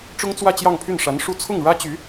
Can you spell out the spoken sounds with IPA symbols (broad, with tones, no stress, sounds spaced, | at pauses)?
ʈ͡ʂ ʊ˥ ŋ t͡s w ä˥˧ t͡ɕ j ɑ˥˧ ŋ pʰ y˥˩ n ʂ a˧˥ n ʂ u˥˧ t͡sʰ ʊ˥˩ ŋ ɻ ä˥ t͡ɕ y˧˥